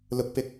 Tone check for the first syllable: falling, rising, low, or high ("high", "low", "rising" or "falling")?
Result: rising